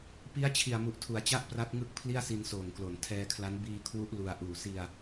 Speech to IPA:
p i˦˥ a̯ t͡ɕʰ i˨˩ a̯ m u˨˩ ʔ tʰ u˩˦ a̯ t͡ɕ a˥˩ ʔ p r a˦˥ t̚ ŋ ɯ˥˩ k̚ pʰ l i˥˩ a̯ s i˧ n s oː˨˩ ŋ k l o˩˦ n tʰ ɛː˧ kʰ l a˦˥ n b iː˧ kʰ w u˦˥ ʔ l u˧ a̯ ʔ uː˨˩ s i˧ a̯

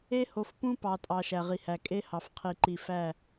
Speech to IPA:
e˦ h o˨˦ f p ũ˦ p ɑ˨ tʼ ɑ˨ ʃ æ˨ ʁ i˨ h æ˨ kʼ e˦ h ɑ˨ f qʰ i˨ ǃ i˨ f æ˦˨

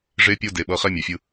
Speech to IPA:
ʐ e˦ pʲ o˦ d e˨ ɓ ʌ˧ χ ɛ˦ mʲ a˨ fʲ ɯ˧

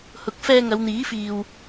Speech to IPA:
h ʊ˨˥ k̚ f ɛː˧ ŋ ɐ˨˧ w n̪ iː˨˥ f iː˨ w

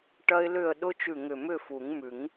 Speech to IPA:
ʈ ɐ˦˥ ɪ̯ l ʏ˥˨ ə̯ ɗ ʊ˦˥ t͡ʃ ʉ˧˩ ŋ ʏ˧˩ m ʏ˥˨ f u˨˩˦ ŋ m ʉ˨˩˦ ŋ

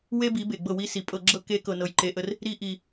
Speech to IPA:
w e˦ b i˨˦ b e˨ ɡ͡b ɤ˦˨ w i˦ s i˨ pʼ ɤ˧ ɡ͡ǁ ɤ˦ k e˦ k ɤ˧ n ɤ˧ j ǃ e˧ ʔ ə˦ r | ɾ i˦ ʔ i˧

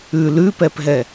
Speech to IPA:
ʉ l ʉ p ɛ p ɦ ɛ

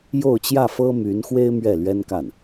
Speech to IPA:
j o˥˧ ʊ̯ t͡ɕ j ä˥˩ f ɤ˥ m y˧˥ n x w e˥ ɪ̯ m ɥ ɛ˥˩ l ɥ ɛ˥ n k a˥˩ n

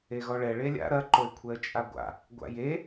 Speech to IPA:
e ɣ ɔ ɭ ɛ ɭ e lʲ a̰ ɾ ɐ ǃ o ɪ̯ kʷʰ ɛ ə̯ t͡ʃʼ a ɡʷ a̰ | ɡʷ a̰ j e

